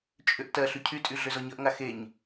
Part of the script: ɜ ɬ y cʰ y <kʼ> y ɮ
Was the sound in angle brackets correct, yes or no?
no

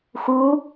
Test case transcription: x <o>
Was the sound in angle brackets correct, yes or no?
no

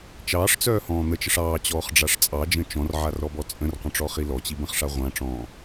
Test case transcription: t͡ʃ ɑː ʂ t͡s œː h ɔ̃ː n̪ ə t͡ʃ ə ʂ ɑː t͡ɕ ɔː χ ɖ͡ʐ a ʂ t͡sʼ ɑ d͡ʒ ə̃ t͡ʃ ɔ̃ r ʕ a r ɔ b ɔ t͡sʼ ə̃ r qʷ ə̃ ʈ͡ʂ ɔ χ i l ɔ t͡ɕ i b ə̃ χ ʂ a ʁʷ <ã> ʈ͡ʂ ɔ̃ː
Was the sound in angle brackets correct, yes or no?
yes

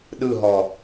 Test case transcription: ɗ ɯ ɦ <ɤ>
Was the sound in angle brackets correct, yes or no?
no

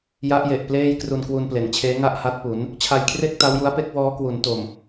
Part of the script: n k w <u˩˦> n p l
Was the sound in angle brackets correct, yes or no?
no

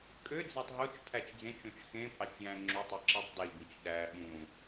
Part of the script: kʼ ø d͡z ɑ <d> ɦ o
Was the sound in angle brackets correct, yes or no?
no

